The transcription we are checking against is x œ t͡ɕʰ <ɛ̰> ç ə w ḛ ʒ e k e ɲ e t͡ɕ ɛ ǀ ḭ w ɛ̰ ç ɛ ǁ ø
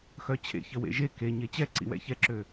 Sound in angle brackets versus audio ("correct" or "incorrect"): incorrect